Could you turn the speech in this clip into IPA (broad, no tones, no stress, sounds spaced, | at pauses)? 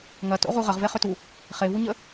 ŋ ɐ t o̰ ʁ u ʁ ə ʁ v e χ ʏ t u | χ e v u ɲ ə